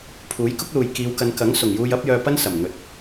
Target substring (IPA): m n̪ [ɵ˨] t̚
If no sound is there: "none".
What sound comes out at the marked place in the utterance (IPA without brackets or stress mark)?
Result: ɵ˨